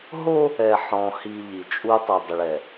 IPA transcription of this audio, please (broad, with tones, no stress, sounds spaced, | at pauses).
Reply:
ɦ o˦ | ɛ˨ ħ ɔ̃˨ h i˨ ʎ i˨ t͡ʃʼ u˦ tˤ a˨ dˤ ʊ˨ ɭ ɛ˨